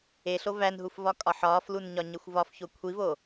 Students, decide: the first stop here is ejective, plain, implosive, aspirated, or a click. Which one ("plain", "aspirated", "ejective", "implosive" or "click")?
ejective